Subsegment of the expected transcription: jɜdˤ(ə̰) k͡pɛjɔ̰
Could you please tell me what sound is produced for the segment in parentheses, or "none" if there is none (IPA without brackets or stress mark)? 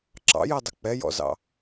ə